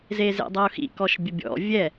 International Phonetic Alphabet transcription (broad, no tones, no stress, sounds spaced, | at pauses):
z e z ḛ dˤ ɤ ʊ̯ x ḭ k ɔ ʃ bʲ ə bʲ ɔ̰ vʲ ɛ